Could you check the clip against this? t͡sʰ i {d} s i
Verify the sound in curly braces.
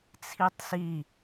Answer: incorrect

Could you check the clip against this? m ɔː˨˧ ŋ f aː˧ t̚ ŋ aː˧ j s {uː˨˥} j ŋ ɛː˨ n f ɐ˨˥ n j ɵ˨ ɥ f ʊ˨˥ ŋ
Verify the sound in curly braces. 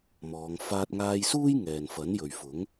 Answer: incorrect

